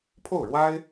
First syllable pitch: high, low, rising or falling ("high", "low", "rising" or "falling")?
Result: falling